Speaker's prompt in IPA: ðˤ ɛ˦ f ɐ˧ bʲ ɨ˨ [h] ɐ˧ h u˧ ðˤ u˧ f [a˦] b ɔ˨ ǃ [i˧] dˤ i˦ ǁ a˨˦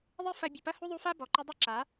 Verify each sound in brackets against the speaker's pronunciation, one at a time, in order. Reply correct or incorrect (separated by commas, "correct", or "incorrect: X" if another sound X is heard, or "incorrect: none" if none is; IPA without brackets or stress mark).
incorrect: p, correct, incorrect: ɨ˧